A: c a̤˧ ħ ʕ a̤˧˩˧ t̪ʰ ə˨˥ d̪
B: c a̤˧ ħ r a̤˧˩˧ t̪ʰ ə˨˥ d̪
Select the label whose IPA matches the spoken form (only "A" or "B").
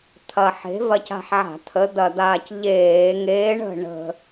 A